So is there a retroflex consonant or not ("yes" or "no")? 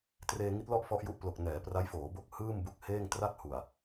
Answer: no